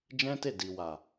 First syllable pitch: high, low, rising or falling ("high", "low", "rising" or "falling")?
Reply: high